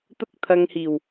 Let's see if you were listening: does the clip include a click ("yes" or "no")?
no